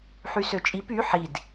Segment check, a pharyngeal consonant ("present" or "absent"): present